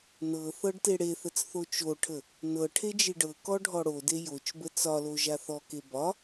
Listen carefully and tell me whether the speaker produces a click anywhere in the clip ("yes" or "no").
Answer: no